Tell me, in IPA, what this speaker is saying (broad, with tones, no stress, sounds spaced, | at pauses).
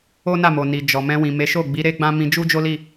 o˦ n a˦˨ m o˨ n i˨ d͡ʒ ɔ˨ m ɛ̃˧ w ĩ˨ m e˨˦ ʃ o˦˨ ɡ͡b i˨˦ ɾ e˦ ɡ͡b ã˦ m ĩ˧ d͡ʒ u˦ d͡ʒ o˦ l i˦˨